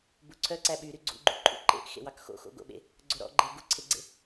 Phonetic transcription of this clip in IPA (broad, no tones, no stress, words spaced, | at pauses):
buǀʰœ ǀæɓyɾy ɡ͡ǀṵɡ͡ǃṵ ǃʼṵǃḛʔ xḛwɑkxo̰ xo̰ɡo̰ɓḛ | ɡ͡ǀoɾɔ̰ɡ͡ǃe ɡuǀʰeɡ͡ǀḛ